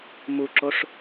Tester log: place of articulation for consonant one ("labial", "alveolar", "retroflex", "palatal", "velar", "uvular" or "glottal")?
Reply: labial